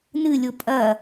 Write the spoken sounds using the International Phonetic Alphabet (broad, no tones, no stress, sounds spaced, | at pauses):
n ɨ lʲ o pʼ ɐ